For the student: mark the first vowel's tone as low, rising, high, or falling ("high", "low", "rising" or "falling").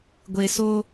low